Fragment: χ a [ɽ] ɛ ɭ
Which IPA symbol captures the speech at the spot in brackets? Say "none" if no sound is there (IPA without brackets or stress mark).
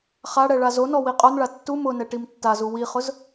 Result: ɽ